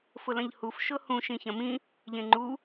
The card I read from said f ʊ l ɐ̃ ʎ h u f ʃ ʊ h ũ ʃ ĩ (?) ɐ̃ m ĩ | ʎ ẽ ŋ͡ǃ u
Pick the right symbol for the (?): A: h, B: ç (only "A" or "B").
B